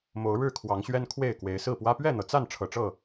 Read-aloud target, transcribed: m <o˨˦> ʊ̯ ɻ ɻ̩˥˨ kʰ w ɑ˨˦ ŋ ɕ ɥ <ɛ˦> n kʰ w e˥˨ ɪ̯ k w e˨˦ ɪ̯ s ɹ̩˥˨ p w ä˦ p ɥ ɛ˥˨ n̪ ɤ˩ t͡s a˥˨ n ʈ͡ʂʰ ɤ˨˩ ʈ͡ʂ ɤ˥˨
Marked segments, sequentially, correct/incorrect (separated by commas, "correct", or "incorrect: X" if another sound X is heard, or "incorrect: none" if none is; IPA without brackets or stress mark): correct, correct